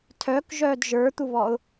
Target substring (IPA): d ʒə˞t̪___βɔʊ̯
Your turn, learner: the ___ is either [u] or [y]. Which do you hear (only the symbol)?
u